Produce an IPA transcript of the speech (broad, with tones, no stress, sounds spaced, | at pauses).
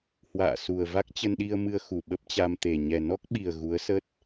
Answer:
h w a̰ː˧˨ s u˨˩ ə̯ v a˦˥ k̚ t͡ɕ ə˧ n ɗ i˧ ə̯ m ɨ˧ ə̯ x u˧˩ ɓ ə˦˥ p̚ t͡ɕ a˧ m t̪ e˨˩ ɲ ɛ˨˩ n ɔ˦˥ k̚ ɓ i˨˩ ə̯ ɣ u˨˦ ə̯ s ə˦˥ t̚